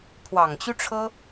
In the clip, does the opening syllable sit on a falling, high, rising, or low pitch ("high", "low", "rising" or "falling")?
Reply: low